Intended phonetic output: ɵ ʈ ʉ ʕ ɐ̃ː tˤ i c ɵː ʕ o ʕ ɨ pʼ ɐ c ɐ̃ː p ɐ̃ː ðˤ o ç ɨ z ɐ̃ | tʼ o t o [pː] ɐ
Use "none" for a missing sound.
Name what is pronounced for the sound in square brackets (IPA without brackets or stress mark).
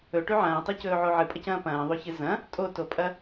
pʼ